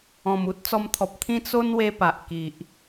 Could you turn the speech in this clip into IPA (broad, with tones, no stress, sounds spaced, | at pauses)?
ɔ̃˨˩ m u˦ t̚ t͡s ɔ˧ m t̪ʰ ɔ˨ p̚ t̪ʰ ĩ˦ t͡s o˦ n w e˧ p a˨ ʔ k i˨ ʔ